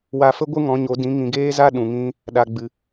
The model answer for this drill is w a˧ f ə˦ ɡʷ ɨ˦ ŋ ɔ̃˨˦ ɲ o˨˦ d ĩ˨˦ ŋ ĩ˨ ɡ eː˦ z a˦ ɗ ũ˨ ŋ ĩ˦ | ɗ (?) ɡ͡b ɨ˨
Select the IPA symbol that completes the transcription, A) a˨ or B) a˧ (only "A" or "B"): A